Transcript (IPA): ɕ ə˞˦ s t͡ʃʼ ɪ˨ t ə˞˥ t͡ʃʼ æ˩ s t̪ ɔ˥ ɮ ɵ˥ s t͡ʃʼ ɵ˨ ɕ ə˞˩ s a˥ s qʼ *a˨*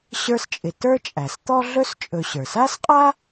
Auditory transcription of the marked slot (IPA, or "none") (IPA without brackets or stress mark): a˥